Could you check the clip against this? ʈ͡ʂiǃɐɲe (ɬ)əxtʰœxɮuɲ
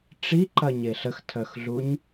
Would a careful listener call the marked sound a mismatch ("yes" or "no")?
no